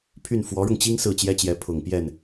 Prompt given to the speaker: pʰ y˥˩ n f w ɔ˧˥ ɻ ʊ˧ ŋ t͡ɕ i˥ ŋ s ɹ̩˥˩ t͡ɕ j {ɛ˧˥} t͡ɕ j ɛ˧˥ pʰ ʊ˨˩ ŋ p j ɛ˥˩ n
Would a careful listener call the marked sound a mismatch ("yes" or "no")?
yes